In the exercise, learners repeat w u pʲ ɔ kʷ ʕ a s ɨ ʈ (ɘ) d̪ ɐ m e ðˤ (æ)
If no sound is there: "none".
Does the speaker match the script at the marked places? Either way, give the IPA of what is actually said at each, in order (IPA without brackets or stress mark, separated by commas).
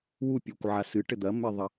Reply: ɘ, ɐ